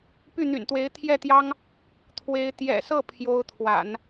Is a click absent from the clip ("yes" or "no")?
yes